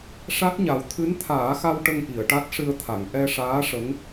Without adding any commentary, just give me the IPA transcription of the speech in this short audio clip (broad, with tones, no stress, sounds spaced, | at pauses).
ʂ a˦˥ t̚ ɲ a˨˩ w t̪ʰ ɨ˧˥ n t̪ʰ aː˨˩˦ x a˧ w ʈ ə˧ ŋ ʔ i˨˩˨ ə̯ ʈ a˦˥ t̚ ʂ ɨ˧ ə̯ t̪ʰ a˨˩˨ ŋ ʔ ɛ˧ ʂ aː˧˥ ʂ ə˧˥ ŋ